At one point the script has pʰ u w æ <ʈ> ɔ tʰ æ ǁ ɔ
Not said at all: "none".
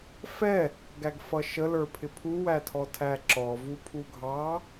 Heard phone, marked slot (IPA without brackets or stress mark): tʰ